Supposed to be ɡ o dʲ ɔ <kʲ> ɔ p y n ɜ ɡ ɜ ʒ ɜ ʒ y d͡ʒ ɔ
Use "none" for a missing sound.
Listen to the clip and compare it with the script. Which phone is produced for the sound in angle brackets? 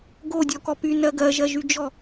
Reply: k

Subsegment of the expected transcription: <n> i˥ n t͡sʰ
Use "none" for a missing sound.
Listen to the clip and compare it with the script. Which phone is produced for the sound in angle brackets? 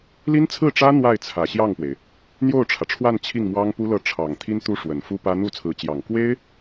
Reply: l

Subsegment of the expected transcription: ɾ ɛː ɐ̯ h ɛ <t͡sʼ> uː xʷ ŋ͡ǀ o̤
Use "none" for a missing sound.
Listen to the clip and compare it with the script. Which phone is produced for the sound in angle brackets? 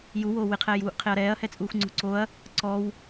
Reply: t͡sʼ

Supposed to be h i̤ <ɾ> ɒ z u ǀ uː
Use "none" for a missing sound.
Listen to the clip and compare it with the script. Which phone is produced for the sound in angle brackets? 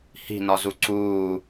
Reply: n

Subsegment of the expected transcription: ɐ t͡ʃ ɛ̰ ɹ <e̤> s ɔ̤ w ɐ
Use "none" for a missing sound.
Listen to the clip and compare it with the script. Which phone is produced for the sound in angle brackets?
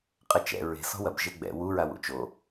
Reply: e̤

